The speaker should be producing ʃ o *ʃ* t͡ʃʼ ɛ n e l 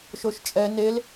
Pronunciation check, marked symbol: correct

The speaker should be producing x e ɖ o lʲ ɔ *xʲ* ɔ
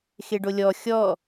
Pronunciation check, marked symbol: correct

